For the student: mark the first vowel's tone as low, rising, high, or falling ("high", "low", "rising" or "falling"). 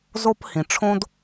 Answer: high